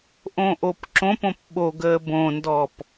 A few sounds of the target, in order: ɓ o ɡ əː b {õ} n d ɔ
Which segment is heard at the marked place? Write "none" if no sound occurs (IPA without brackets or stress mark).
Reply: õ